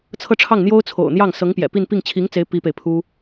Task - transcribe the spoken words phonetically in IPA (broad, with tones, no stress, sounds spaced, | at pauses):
t͡sʰ ɤ˥˧ ʈ͡ʂʰ ɑ˥˩ ŋ n̪ j o˥ ʊ̯ t͡sʰ o̰˨˩ ʊ̯ n̪ j ɑ˥˩ ŋ s ɤ˧˥ ŋ p j ɛ̰˨˩ p i˥˧ n p i˥˩ ŋ t͡ɕʰ i˧˥ ŋ t͡s e˧˥ ɪ̯ p i˥ p e˨ ɪ̯ pʰ u˥